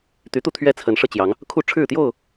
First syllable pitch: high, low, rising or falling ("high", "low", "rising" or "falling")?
rising